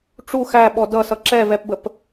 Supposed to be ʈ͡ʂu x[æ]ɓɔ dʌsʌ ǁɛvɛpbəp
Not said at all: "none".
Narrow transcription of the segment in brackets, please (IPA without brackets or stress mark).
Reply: æ